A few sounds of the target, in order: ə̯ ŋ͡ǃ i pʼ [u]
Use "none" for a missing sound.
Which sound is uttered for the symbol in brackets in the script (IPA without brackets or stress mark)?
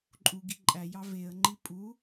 u